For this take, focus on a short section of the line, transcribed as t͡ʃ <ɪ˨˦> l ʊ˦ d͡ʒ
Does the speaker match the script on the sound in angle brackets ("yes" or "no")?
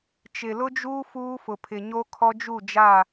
no